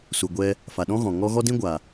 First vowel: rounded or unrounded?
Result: rounded